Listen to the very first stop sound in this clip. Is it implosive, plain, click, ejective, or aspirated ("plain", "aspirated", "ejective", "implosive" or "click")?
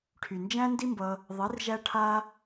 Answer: aspirated